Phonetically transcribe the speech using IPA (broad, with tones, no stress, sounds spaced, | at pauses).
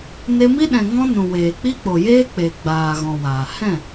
n e˧ m i˦ ɗ ɛ̃˨ ŋ ɔ̃˦ n ũ˨ w eː˨ k͡p i˦ k͡p o˨ j eː˦ k͡p e˨ ɡ͡b aː˨ ɣ ɔ̃˨ w aː˨ h ɛ̃˦˨